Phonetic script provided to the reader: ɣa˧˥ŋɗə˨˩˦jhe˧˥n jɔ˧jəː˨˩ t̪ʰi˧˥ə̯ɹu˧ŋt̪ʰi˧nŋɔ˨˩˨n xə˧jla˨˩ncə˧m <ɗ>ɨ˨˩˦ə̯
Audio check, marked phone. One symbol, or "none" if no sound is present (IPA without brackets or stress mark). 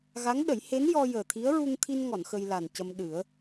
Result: ɗ